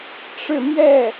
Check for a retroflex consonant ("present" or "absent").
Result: present